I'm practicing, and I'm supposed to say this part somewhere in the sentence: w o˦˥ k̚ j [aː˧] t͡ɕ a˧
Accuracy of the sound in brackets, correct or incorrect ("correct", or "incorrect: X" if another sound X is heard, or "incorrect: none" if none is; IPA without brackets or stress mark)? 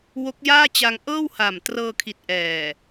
incorrect: aː˥˩